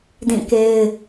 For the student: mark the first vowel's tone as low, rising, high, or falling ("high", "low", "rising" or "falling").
falling